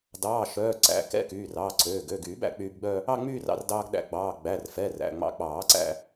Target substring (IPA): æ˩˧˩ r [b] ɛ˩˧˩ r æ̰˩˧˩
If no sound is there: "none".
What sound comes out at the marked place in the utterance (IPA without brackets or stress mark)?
f